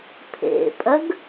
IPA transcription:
pʰ ḛ pʼ ɜ ɡ

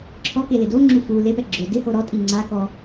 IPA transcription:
ǁʰ ɔ k e l ɪ d o ŋ͡ǁ u f u l e p ɛ ɡ͡ǁ ʊ d ɪ h o ɾ ɔ tʼ i ŋ͡ǀ a k ɔ

